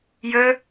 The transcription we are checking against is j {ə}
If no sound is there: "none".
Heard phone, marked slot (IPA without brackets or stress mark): ə